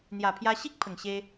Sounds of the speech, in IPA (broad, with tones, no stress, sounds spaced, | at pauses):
n̪ j a˨˩ pʰ j a˧ ɕ i˦ k̚ pʰ ə˨˩ ŋ ɕ e˧